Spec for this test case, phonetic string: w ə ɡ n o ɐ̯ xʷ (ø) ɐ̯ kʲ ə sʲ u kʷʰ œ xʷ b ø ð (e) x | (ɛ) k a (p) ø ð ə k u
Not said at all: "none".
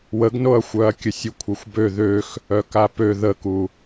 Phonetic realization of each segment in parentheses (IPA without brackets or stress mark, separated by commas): œ, ø, œ, p